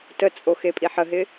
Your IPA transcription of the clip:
tət͡sʼo xepʼiħəɦɪ

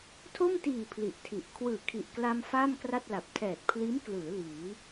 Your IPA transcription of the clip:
tʰo˥˩mtiː˨˩ pʰli˨˩ʔtʰi˨˩ʔ kʰwɯː˨˩kʰi˨˩ʔkla˧m faː˥˩mkra˥˩t̚la˨˩p̚ tʰɛː˨˩t̚pʰliː˦˥m klɯː˩˦ liː˩˦

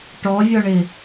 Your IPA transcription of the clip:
ʈɔvʲɔɳɪ

